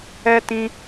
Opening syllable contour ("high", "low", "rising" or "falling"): high